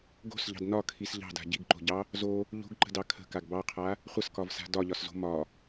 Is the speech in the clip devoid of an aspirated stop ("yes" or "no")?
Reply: no